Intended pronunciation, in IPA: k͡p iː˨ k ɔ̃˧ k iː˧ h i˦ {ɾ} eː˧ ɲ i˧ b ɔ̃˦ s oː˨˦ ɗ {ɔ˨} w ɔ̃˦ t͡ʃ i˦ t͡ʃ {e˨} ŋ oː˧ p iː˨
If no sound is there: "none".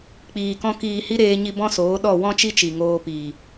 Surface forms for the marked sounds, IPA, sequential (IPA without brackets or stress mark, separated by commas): ɾ, ɔ˦˨, i˨